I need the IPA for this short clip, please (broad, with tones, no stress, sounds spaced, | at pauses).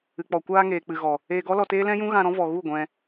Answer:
ɨ˨ k͡p ɔ˨ kʷ aː˧ ŋ eː˨ k͡p ɨ˨ ɣ ɔ˨ | eː˧ ɡ ɔ˦ l ɔ˧ t eː˦ l ɛ̃˦ j ũ˦ ɣ ã˧ ɾ ɔ̃˦ v ɔ˨ ɣ u˦˨ ɡʷ ɛ̃˧